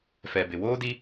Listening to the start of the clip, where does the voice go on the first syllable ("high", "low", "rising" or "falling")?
low